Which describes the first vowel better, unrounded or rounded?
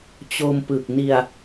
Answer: rounded